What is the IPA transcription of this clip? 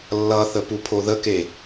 lː ʌ θ ə p u pʰ o ð ə k e

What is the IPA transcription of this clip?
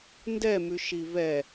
n d ɛ m ʉ ʃ i v ɛ

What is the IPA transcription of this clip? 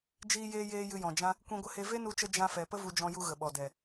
d͡ʒ iː˧ j eː˧ j eː˧ j ɨ˧ j ɔ̃˨ d͡ʒ ã˦ | kʷ ĩ˧ ɡʷ ə˧ h e˧ v e˦ n u˧ t͡ʃ ə˧ d͡ʒ ã˧ f ɛ˨ p ə˦ v u˧ d͡ʒ ɔ̃˧ j u˧ ɣ ə˨ ɓ ɔ˨ d ɛ˨

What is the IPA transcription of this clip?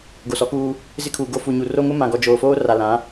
ɡ o˨ s ɔ˨˦ k uː˦ | z ɪ˦ kʰ uː˨ ɡ o˦ f u˨ ɲ u˨ r o˦ ŋ ʊ˦ m ã˨ ɡ ɔ˨ d͡ʒ oː˨ f oː˦ r a˨ l ã˨˦

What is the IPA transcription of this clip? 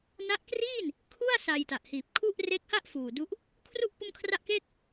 n a˦˥ ʔ k r iː˥˩ n | kʰ u˥˩ a̯ s a˧ j t a˨˩ ʔ h iː˨˩ p̚ kʰ u˥˩ ʔ r e˦˥ k̚ h a˥˩ ʔ f uː˨˩ d u˦˥ ʔ | kʰ r u˥˩ ʔ p o˥˩ m kʰ r a˥˩ ʔ k eː˥˩ k̚

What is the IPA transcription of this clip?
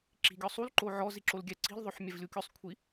ǁ i̤ ɡʲ ɔ sˤ u l ǃ o ʕ ɔ z i ǁ o l ɡʲ ɛ ǀ i̤ lʲ ðˤ o ħ mʲ ɛ v lʲ u kʲ o sˤ kʷʰ i

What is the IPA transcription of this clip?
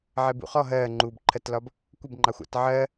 ʕ ɛ b ṵ χ ɔ ɦ ɜː ŋ͡ǃ uː b ǃʰ ɜ t l ɒ b | kʷ ɪ b ŋ͡ǃ ɑ xʷ ɑ̰ t ʕ ɜ

